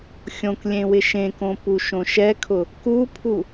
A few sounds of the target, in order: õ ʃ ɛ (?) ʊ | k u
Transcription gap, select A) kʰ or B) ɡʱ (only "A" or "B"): A